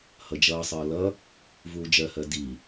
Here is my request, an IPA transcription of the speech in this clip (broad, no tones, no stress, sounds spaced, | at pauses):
h ʌ d͡ʒ ʌː sˤ ʌː l ʌ | v uː d͡ʒ ɜ h ɜ d i